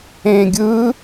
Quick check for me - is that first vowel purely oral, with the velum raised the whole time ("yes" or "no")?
no